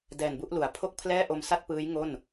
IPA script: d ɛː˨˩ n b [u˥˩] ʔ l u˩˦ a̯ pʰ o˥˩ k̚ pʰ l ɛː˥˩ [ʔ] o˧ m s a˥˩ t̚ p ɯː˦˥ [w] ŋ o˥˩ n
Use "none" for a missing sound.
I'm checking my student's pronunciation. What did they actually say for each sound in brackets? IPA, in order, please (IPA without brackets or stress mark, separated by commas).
u˥˩, ʔ, j